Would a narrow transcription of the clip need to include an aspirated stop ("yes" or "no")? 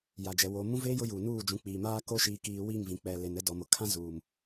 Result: yes